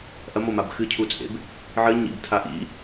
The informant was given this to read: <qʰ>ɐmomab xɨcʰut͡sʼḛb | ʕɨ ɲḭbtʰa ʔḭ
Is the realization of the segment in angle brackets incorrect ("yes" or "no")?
yes